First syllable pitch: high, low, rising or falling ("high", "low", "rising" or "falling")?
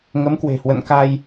rising